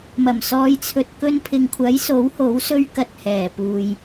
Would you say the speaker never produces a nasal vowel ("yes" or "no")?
yes